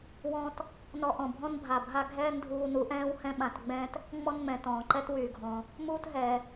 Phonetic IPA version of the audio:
wɔ̃ː˧t | nɔ˧ʔɔ̃˩bʱɔ̃˥n bʱa˩bʱa˥ ɡʱɛː˥ndʱuː˧nu˧ʔɛ̃ː˥w hɛ̃˥ɓã˧tɡ͡bɛ̃ː˥t | ŋ͡mɔ˥nŋ͡mɛ̃˩ tɔ̃ː˩ǃɛ˥twyː˩ɡʱɔ̃ː˩ | muː˥tɦɛː˩

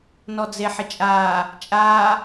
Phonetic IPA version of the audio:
nɔd͡zeħɪt͡ʃʼaː | t͡ʃʼaː

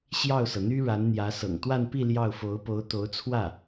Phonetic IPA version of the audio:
ɕjɑ˥˩ʊ̯sɤ˩ n̪y˥ɻa˧˥nn̪jä˧˥ sɤ̰˨˩ŋt̪wa˥˧npi˥˧ ljɑ˥˩ʊ̯fo˧˥ʊ̯po˧˥ʊ̯ t̪o˧˥ʊ̯t͡sʰwä˥˩

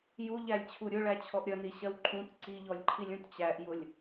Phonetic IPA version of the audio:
juʎælʲt͡ɕʰu ɾʲʊɭæt͡ɕʰɔʔ ɾʲʌniɕɜw ǃʰũt ǀiʎɔlʲǃʰilʲũt t͡ɕæʔjʊlʲ

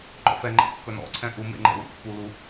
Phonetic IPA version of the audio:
ŋ͡ǃɔ̰fɛŋ͡ǃɛ̰ kːɵnɔ̰ǀʰɛ̃ ʔumḛŋ͡ǃɛ̰ wṵpːulu

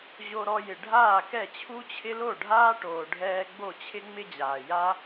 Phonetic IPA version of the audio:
ʑo˧ɾɔ˧jɪ˩ ɖʱaː˥˩kɛ˥˩t͡ɕʰu˥t͡ɕʰɪ˥ lo˥˩ɖʱaː˥ʈoː˩ɖʱɛː˧ ɡ͡bo˥˩t͡ɕʰɪ˥ŋ͡mɪ˥d͡ʑaː˩ ja˥

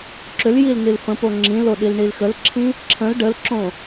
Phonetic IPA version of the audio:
ǁʏl jilnilfə̃po ŋ͡ǁĩlo ɗilɳilxəlǁʰĩ | ǁʰə̃l ɖəlǁõ

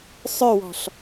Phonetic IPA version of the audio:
sˤœwɔ̤ɬ

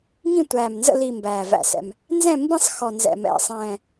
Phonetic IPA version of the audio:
ŋĩ˦˨tʷæː˨˩mnzə̰˦˨ li˨˩ mbæː˨˩væ̰˨˩sɛ̰˨˩m | nzɛ̃˦˨mbĩ˦˨sˤxɔ˨˩ nzɛ̰˨˩mɛ̰˨˩sˤɛ̃ː˨˩

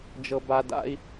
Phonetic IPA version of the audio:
d͡ʒɤ˦ba˦ da̰˦i̯

